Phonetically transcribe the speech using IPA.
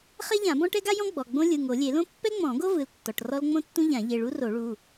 χ ɛ˥ ʎ ã˨˩˦ b ɔ̃˥ ʈ ɛ˥ ɡ a˥ j ɔ̃˥ ɡ͡b ɔ˩˧˩ ɡ͡b õ˥ lʲ ɯ˩˧˩ ŋ o˨˩˦ lʲ e˨˩˦ l õ˥ pː ɛ˥ ŋ͡m ɔ̃˨˩˦ ɡ o˥ v ɯ˩˧˩ l tː ɔ˩˧˩ ʈ r ɔ˥ l ŋ͡m õ˥ tː ũ˥ ʎ ã˨˩˦ ʎ e˩˧˩ ɭ u˥ r o˨˩˦ ɭ u˩˧˩

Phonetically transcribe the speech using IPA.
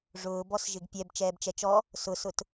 ʐ ʊː b ɔ s ʒ ɪ ɡ pʲ ɛ b t͡ʃ ɛː b t͡ʃ ɛ t͡ʃ ɔ | s ʊ s ʊ t

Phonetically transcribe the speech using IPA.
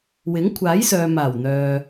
w ɪ˨˥ ŋ kʷʰ aː˨˥ j s œː˨ m aː˨˩ w n̪ œː˨

